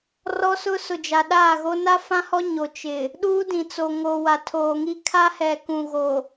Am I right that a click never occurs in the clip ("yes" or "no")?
yes